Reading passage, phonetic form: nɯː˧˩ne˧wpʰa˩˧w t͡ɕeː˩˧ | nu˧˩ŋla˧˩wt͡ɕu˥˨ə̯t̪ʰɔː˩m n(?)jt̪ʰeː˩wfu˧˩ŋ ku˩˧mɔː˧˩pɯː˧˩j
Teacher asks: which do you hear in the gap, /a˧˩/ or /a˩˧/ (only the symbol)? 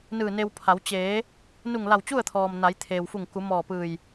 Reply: a˩˧